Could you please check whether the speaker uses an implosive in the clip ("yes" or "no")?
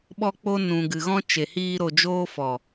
yes